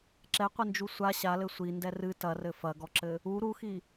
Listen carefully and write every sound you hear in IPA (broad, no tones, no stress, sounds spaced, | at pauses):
ǁ ɛ qʷ ɨ n d͡ʒ u sʷ a ɕ a l ɘ sʷ i n d ɛ r ɨ t ɐ r ɘ f ɐ ɡ ɔ ǁ ɘ | u ɾ u x i